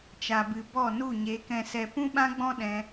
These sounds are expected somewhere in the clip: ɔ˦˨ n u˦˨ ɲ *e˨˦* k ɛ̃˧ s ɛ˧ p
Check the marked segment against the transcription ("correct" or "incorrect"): correct